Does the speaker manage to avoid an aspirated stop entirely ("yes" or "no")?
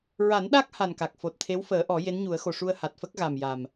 no